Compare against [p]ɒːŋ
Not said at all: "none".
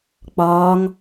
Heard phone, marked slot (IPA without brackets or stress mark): k͡p